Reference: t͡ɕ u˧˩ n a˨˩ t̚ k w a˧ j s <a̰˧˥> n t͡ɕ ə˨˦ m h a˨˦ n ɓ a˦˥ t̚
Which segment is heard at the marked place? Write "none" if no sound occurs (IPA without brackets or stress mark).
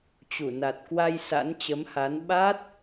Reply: a̰˧˥